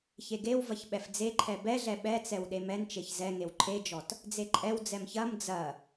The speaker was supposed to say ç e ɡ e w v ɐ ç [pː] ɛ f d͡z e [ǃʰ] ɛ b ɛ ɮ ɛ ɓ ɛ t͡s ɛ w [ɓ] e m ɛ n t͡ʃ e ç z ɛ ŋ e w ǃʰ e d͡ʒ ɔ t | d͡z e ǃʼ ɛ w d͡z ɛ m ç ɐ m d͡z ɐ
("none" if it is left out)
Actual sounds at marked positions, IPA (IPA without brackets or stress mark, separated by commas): ɓ, ǃʰ, ɗ